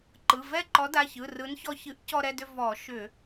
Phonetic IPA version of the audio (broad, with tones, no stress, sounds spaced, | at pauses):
ǃ ɯ˩˧˩ v ɛ˥˩ ǃ ɔ˨˥ d a˩˧˩ ç ɯ˩˧˩ r ɯ˨˥ n ç ɔ˧ ç ɨ˨˥ ʔ c ɔ˧ ɾ ɛ˧ d ʏ˧ v ɔ˧˩˧ ʃ ʏ˧˩˧